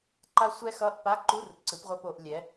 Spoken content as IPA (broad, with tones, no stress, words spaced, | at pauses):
ǃa˦˥ sʷɛ˦˥xʌ˧˥˧ʔpa˧˥˧ǃu˧˥˧r ǀɯ˩˥pʁʷʌ˧˥˧po˩˧ʔ lʲɛ˩˥